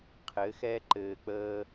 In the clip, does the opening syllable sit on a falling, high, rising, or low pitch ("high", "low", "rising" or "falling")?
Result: rising